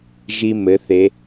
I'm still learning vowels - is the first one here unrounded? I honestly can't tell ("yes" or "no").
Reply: yes